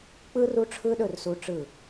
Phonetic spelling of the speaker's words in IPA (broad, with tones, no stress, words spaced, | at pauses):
k͡pɯ˦ ru˦ʈ͡ʂʰɯ˦ɗɵ˦˨r su˦ʈ͡ʂɯ˦˨